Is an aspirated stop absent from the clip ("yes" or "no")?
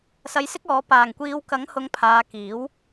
no